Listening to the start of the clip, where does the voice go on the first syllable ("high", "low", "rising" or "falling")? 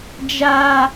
high